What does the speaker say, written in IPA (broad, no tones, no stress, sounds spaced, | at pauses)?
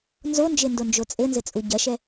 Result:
n z o n d͡ʒ e n d o n d͡ʒ o t͡sʼ ɘ n z ɘ t͡sʼ u ɟ ɐ ʃ ɛ